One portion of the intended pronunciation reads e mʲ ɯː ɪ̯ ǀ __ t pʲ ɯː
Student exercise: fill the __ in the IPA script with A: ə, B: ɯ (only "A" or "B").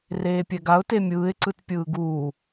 B